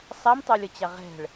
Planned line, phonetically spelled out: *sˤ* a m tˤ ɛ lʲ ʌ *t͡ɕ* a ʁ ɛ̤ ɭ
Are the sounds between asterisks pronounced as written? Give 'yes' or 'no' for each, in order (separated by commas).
yes, yes